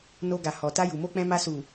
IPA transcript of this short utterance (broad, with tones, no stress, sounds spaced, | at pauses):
n o˧ ɡ a˨ h ɔ˨ t a˧ j u˨ m o˧ k͡p ɛ̃˧ m a˧ s u˨